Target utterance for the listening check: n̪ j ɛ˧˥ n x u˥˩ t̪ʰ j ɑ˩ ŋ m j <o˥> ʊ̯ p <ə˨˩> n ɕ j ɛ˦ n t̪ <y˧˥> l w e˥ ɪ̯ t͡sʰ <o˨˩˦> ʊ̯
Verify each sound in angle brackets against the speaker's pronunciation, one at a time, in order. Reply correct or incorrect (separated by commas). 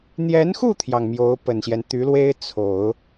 incorrect, correct, correct, correct